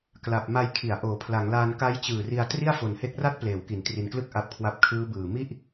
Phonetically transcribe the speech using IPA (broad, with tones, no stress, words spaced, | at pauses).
kla˨˩p̚ ma˧jkʰi˩˦a̯ ʔoː˩˦pʰla˩˦ŋlaː˧n ka˦˥jt͡ɕɯː˨˩ri˧a̯ tri˥˩a̯fo˨˩nhe˦˥k̚ra˥˩t̚ pleː˩˦wki˩˦n tri˨˩nklɯ˥˩k̚ ʔa˦˥p̚kʰwa˦˥p̚ kʰɯː˦˥bɯː˨˩ mi˥˩ʔ